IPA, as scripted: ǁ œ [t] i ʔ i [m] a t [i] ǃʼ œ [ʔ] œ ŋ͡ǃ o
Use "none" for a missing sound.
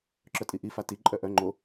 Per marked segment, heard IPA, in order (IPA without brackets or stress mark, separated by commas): tʼ, f, i, ʔ